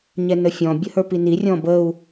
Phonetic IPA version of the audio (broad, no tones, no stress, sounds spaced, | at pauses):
ɲ ɛ n ə fʲ ɔ̃ bʲ ə h ə˞ p i n i rʲ ɔ̃ b ə u̯